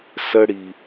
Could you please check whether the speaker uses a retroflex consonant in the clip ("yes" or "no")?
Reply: yes